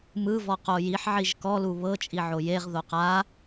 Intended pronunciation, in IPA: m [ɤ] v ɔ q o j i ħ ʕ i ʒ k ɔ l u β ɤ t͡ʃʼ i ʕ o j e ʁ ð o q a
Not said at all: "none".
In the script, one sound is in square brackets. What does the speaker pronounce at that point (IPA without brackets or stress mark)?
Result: ɯ